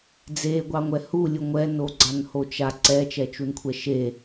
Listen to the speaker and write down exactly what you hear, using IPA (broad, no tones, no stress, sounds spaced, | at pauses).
d͡z e ɡʷ ɑ ŋʷ ɛ h u lʲ u ŋʷ ɛ n o ɡ͡ǀ a n h o t͡ʃ a ǀ ɛ t͡ʃ ɛ t͡ʃ u n kʷʰ ɛ ʃ e